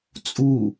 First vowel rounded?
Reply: yes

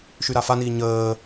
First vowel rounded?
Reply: yes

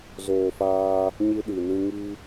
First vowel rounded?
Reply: yes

